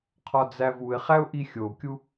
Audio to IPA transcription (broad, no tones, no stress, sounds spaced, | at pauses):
qʰ ɒ d͡z æ v u ɪ̯ χ æ ʊ̯ ʔ i xʲ o kʲ u